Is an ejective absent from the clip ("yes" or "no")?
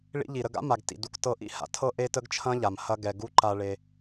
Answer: yes